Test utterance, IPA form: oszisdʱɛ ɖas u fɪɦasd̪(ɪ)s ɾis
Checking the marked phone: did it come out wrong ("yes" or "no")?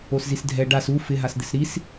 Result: no